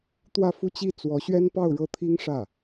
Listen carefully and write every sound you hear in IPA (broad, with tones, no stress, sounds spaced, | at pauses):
t̪ w ä˥˧ f u˥˧ t͡ɕ i˥˩ t͡s w ɔ˧˥ ɕ ɥ ɛ˥ n p ɑ˥˧ ʊ̯ ɻ ɤ˥˩ t̪ʰ i˥ ŋ ʂ ä˥˩